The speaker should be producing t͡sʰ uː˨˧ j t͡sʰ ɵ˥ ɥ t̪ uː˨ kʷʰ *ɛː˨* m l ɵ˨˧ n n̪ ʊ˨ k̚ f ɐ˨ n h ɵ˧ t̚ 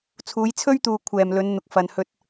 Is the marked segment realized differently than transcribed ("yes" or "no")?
no